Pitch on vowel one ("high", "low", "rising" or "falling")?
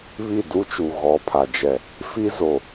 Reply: falling